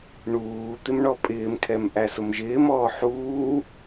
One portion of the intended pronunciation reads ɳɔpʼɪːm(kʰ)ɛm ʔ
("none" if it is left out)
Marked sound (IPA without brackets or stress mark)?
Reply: kʰ